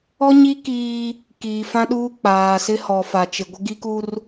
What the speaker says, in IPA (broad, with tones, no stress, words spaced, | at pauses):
ɔ˦ɲi˦ kiː˦ | kiː˨fã˦ɗuː˦ k͡paː˨sɪ˦ hɔ˨fa˨t͡ʃɪ˨ ɡʷɪ˦ɡi˦ku˦r